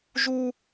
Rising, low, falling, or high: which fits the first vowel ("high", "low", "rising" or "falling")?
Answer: high